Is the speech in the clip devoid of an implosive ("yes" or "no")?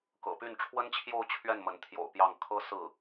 yes